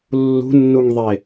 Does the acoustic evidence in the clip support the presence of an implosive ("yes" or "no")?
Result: no